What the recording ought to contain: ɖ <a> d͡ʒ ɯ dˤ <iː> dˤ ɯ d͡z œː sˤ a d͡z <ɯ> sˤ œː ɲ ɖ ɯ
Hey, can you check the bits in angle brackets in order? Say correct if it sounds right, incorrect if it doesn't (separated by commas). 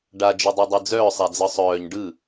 correct, incorrect, correct